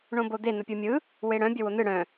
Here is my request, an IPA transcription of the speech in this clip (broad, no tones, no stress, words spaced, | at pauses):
ɳõbod̪e n̪əpʲɯmʲɯ | weɽœ̃ bʲəwon̪ɯ ɽœ̃